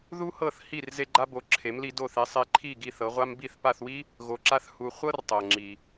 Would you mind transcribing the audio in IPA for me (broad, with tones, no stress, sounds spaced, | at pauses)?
ð u˥ h ɤ˥˩ θ h i˥˩ r z e˥ ɡ͡ǃ a˥ b o˩˥ ǁʰ e˩˥ m l i˧ d o˥˩ θ e˧ sˤ e˧ ǃʰ i˥˩ ɡ i˥˩ θ ɤ˩˥ ʁʷ a˥ m b i˥˩ θ p a˥˩ θ w i˥ | ɣ o˧ ǁ a˥ θ h u˧ χʷ ɤ˥ r tˤ ɤ˩ ŋ͡ǁ i˩